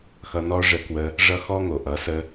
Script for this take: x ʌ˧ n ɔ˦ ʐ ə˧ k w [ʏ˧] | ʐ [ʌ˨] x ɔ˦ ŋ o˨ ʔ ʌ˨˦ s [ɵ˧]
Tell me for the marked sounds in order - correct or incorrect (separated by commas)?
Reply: incorrect, incorrect, incorrect